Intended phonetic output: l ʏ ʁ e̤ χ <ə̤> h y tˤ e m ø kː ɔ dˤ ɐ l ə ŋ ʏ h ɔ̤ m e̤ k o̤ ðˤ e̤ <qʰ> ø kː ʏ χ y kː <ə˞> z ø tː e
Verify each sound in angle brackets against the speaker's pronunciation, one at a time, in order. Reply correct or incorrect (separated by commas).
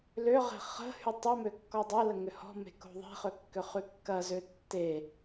correct, incorrect, incorrect